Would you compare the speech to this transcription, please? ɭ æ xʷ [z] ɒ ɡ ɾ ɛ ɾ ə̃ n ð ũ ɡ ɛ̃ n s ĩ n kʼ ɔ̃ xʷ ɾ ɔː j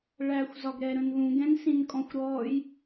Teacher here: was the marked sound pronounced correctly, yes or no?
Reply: yes